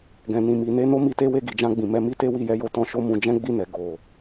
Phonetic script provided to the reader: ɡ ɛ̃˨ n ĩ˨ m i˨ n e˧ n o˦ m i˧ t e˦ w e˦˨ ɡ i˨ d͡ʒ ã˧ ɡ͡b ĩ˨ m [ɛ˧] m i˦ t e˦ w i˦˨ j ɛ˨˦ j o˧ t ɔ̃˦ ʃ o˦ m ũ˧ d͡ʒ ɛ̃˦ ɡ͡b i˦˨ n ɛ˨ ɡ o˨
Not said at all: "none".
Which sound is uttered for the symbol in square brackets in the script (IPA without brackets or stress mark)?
ɛ˧